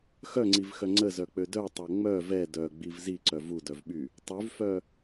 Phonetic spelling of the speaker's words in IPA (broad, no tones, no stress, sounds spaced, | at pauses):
x œ ŋ͡ǀ i v x œ ŋ͡ǀ ə z œ k͡p ø d œ tˤ o ŋ͡m œ v ɛ d œ ɡ͡b i v z i ǀ œ v u d œ v ɓ y | tˤ y v f œ